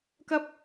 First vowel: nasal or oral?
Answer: oral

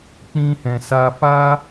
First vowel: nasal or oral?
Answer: nasal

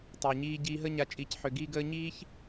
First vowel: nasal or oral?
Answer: oral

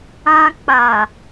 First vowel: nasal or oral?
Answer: nasal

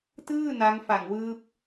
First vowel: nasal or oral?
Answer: oral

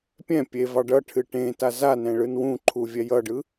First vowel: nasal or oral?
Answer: nasal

